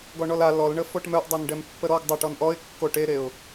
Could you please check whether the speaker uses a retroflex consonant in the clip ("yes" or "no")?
yes